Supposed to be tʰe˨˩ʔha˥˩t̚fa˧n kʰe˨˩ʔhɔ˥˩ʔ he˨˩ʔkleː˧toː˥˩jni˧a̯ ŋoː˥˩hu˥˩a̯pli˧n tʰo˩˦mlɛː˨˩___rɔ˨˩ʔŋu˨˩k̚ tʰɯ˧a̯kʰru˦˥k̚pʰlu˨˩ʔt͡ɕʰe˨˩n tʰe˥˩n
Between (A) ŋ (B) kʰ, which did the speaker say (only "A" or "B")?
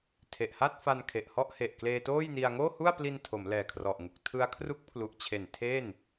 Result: B